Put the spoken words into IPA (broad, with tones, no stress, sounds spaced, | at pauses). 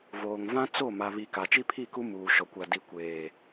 v oː˨ ŋ v ã˦ t͡s o˦˨ m a˨ β i˨ k a˨ t͡ʃ i˦ pʰ i˦˨ k u˦ m uː˨ ʃ ɔ˨ kʷ a˨ d i˨ kʷ eː˨